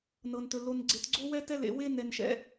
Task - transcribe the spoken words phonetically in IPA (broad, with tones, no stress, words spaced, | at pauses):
nɤ˧ntɵ˧ lo˧nɡ͡ǀe˧tɡ͡ǀo˥ wɛ˥tɛ˥lḛ˧ we˥nɛ˧nʃɛ̰˧